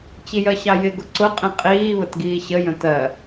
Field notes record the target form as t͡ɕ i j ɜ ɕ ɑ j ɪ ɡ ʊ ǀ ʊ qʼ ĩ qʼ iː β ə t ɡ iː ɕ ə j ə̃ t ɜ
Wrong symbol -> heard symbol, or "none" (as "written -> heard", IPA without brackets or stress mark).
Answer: none